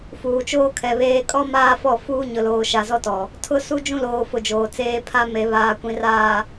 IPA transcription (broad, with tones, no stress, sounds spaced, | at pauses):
f uː˨ t͡ʃ oː˦ kʰ ɛ˨ β eː˦ kʼ ɔ˦ m aː˦ f ɔ˦˨ f uː˦ ɲ ʊ˨ l oː˨ ʃ a˨ z ɔ˦ t ɔ˨ | tʰ ʊ˦ s u˦ d͡ʒ ũ˦ l oː˨ f ʊ˨ d͡ʒ oː˨ t͡s eː˦ pʰ a˦ m e˨ β aː˨ kʷ ĩ˨ r aː˨